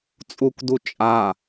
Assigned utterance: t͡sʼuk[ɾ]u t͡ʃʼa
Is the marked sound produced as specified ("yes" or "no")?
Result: no